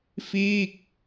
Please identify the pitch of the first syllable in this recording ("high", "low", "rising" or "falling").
falling